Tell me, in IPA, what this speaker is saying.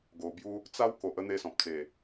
ɡo˨˩bju˧ | t͡sa˦wko˨ʔ ə˧ n̪e˦sɔ̃˨p̚ t͡se˨˩

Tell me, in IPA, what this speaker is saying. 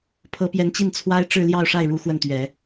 pʰɤ˧˥pjɛ˧˥nt͡ɕi˥˩n t͡sʰwa˥ɪ̯ʈ͡ʂɻ̩˥˧ljɑ˥˧ʊ̯ ʂa˥˩ɪ̯ɻu˧˥ xwə˥˩nt̪ɥɛ˨˩˦

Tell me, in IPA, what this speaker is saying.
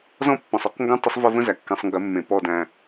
zɔ̃˦ pːɔ̃˨sˤɔ˦qŋɡə̃˦ tˤə˦sˤvə˦və̃˦zæ˨ kːɛ̃˨sˤŋɡə˨˦mːẽ˨ pɔ˦dæ̃˦

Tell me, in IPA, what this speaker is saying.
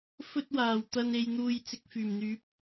fɵ˧t̚waː˨˩wt̪ɐ˨n e˨j n̪uː˨j t͡sɪ˧k̚fyː˨˩mn̪yː˨˥p̚

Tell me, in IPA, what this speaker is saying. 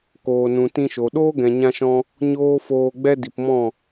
koː˨nũ˨tĩ˧ʃo˨ ɗoː˦ɡɛ̃˨ɲã˧ʃɔ̃˧ | ɲoː˦foː˧ ɡ͡bɛ˦ di˨pmɔ̃˦˨

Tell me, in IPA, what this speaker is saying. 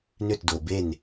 nʏ˦˨tdo˨be˦˨n

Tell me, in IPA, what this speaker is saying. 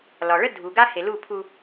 lɒ˨ɭə˦dʱu˨ ɡa˦he˨lu˦˨ pʰu˦

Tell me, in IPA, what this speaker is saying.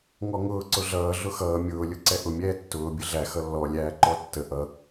ŋɔŋʊː ǀʊɮʌː ɮʊxʌː mʲʊːlʲʊ ǀɛʔʊmʲɛː tːʊː bʲəɮæ xʌlːɔlʲæː ǃɔtːə ʔʌ

